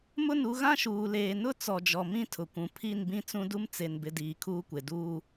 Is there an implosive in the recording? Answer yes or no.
no